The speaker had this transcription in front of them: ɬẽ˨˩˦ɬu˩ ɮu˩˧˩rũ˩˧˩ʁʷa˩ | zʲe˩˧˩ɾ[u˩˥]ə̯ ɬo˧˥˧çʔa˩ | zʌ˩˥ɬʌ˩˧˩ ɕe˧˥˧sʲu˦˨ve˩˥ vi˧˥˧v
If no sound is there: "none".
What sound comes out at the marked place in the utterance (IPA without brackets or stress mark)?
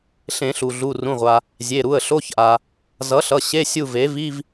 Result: u˩˧˩